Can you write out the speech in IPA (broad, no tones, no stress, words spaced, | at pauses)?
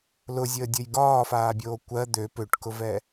lʊzʲəːdʲəj ɡɒːfaːbʲoː kʷɜ d̪ø pøʈkʊvɛ